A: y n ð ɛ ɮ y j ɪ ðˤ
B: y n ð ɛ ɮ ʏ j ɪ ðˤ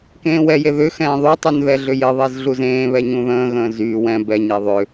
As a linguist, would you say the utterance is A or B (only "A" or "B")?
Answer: B